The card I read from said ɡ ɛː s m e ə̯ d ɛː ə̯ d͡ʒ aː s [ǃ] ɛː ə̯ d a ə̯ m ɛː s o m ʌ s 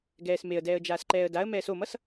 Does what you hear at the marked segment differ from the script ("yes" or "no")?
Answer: no